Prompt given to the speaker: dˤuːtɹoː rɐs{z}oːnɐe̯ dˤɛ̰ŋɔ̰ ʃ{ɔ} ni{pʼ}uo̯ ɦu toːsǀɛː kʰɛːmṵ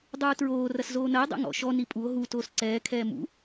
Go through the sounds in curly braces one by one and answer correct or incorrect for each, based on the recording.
correct, correct, correct

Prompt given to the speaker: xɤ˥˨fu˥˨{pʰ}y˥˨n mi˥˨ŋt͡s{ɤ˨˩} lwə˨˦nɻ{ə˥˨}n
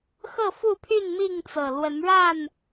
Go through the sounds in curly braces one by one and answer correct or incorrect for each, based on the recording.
correct, correct, incorrect: a˥˨

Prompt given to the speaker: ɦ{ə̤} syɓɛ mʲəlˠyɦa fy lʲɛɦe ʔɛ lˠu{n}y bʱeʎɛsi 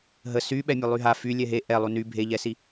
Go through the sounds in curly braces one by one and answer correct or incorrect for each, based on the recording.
incorrect: ə, correct

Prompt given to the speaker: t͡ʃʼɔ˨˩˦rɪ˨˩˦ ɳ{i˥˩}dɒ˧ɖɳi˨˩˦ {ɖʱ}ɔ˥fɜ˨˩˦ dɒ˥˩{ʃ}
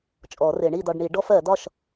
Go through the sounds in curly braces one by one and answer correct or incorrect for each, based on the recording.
correct, incorrect: ɖ, correct

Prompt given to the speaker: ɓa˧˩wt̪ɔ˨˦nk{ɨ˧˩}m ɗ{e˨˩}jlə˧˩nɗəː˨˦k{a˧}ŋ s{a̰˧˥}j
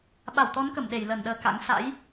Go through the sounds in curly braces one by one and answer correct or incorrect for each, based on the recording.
incorrect: ə˧˩, incorrect: e˧˩, incorrect: a̰˧˥, correct

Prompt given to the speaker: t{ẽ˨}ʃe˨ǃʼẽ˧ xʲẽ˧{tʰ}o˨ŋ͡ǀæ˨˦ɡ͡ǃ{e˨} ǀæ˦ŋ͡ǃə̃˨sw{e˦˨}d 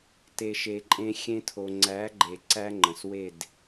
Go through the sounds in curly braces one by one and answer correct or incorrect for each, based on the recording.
incorrect: e˨, correct, correct, correct

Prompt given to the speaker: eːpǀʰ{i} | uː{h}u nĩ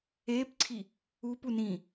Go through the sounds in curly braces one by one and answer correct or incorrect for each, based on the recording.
correct, incorrect: p

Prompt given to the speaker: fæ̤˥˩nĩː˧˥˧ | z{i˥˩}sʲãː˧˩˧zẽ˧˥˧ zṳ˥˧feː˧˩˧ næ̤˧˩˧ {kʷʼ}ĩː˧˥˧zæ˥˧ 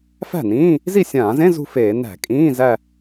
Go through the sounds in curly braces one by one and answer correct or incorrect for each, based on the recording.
correct, incorrect: kʼ

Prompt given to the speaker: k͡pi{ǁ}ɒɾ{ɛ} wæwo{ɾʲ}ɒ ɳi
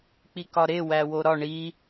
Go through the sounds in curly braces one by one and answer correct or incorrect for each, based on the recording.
incorrect: k, incorrect: e, incorrect: ɾ

